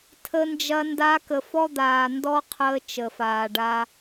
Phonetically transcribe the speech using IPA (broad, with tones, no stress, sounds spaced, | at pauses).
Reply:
tʰ ə˧ n d͡ʒ ɐ˧ n d a˧ k ə˨ f ɔ˦ d̪ aː˨ n d ɔ˦ qʰ əː˧ t͡ʃ ə˨ f aː˨ ɖ a˧